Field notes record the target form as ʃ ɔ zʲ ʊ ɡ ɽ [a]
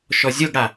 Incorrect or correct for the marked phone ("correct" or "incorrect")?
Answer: correct